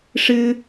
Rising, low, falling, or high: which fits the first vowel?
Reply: high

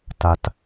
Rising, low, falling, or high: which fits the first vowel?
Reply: low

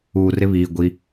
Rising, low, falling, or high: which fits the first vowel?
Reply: low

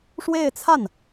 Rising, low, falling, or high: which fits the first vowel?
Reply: falling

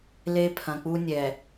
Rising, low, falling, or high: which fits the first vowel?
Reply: high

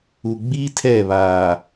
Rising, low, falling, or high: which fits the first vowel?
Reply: low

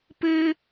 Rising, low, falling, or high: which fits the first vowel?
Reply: high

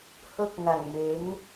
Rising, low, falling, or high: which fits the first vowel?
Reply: high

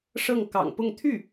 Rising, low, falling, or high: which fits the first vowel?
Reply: falling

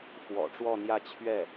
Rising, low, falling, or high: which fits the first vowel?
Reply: low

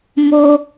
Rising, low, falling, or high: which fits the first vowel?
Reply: high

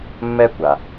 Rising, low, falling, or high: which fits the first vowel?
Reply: high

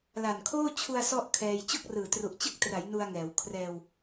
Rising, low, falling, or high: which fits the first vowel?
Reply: low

